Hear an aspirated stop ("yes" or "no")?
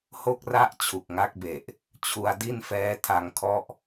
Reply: yes